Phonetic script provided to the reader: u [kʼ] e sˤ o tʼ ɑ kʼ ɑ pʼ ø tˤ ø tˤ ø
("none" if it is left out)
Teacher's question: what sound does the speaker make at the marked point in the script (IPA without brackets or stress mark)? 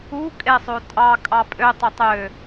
kʼ